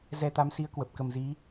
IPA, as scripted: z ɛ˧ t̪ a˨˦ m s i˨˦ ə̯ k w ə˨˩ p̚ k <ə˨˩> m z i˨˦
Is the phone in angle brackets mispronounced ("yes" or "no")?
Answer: no